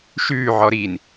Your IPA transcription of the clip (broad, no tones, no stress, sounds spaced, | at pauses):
ʃ ʉː ʕ ɔ ɾ i n